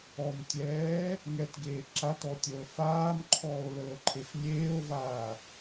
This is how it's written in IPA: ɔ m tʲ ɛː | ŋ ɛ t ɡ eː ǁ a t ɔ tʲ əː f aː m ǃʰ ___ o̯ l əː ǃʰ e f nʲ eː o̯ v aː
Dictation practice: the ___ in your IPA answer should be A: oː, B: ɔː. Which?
B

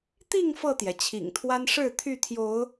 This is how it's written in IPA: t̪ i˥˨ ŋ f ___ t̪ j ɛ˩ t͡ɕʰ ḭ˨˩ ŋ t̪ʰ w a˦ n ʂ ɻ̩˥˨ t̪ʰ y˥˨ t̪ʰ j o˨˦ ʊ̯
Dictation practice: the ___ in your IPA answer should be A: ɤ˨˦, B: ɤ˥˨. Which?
B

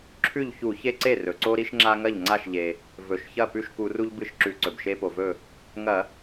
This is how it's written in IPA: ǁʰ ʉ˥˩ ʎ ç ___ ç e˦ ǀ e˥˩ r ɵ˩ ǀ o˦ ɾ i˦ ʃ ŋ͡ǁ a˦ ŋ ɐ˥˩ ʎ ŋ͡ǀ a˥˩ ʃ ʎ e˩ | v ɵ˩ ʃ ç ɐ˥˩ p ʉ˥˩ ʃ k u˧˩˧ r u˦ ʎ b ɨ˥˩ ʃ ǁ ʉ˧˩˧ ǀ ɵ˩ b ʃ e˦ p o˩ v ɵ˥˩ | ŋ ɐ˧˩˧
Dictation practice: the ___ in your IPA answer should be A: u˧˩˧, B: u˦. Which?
A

